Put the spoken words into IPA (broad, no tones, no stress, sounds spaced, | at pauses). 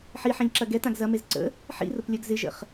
ħ i ħ ɛ̃ ʎ ǁ ɐ ɡ ɛ t ã ɡ z ɐ m e z ǀ ə̰ | ħ ḭ r ʊ p lʲ œ ɡ z ɪ ʒ ə̰ χ